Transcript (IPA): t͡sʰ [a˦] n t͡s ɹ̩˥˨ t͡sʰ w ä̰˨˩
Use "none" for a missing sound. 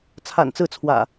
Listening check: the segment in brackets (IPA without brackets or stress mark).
a̰˨˩